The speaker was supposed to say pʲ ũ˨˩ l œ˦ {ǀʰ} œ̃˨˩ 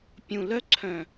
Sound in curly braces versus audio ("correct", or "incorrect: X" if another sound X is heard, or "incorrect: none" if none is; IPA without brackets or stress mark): correct